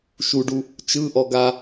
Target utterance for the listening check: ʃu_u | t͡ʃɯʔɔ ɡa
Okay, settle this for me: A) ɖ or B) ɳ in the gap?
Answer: A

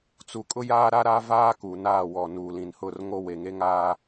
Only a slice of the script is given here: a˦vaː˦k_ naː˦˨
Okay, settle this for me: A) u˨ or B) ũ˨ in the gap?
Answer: A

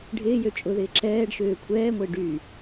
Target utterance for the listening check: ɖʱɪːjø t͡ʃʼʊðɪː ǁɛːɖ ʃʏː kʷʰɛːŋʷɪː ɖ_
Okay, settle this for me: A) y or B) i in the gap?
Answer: A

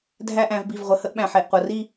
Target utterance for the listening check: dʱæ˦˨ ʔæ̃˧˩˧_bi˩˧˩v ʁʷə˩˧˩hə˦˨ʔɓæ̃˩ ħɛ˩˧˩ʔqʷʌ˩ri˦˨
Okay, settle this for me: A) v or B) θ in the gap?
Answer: A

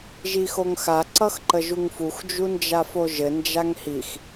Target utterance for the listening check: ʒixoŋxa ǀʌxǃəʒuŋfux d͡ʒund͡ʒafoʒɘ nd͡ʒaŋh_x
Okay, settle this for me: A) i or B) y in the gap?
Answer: A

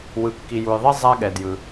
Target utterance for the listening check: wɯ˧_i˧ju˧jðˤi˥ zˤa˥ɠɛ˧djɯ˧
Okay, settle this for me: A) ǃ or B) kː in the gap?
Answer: B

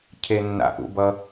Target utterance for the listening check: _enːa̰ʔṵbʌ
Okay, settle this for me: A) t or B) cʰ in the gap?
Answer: B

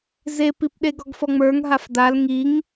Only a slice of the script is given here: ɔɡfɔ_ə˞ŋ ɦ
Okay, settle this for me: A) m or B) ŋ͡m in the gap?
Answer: B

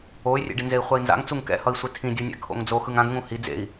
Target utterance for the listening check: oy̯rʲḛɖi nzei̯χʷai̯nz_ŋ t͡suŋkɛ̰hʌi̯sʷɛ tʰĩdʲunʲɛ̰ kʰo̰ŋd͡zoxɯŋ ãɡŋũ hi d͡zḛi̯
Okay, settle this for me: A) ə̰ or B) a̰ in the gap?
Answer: B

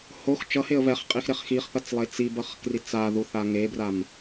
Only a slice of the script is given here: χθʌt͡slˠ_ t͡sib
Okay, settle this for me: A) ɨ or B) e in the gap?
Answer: B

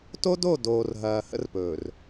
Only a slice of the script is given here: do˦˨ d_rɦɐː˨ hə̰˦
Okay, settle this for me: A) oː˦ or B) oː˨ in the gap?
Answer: B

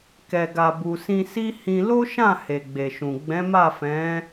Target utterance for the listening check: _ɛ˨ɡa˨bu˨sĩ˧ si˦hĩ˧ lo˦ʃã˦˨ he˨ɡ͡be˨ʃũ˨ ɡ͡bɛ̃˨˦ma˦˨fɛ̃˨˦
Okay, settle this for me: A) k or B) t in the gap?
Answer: A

